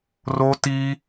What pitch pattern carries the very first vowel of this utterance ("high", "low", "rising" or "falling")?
high